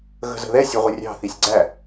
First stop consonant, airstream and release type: click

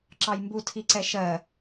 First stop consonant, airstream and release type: click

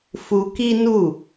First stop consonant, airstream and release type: plain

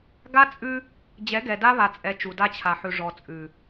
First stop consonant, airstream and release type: plain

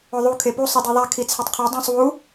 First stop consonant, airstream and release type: aspirated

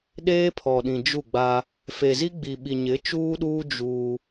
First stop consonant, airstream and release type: implosive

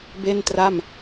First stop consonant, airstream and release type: plain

